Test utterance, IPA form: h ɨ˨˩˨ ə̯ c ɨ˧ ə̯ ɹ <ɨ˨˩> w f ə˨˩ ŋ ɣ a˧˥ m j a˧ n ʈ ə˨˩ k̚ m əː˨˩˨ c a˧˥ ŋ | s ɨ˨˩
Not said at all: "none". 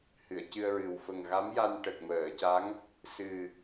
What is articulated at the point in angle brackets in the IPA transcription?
ɨ˨˩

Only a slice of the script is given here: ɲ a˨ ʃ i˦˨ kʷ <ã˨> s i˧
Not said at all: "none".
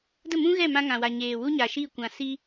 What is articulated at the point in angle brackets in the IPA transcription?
ã˨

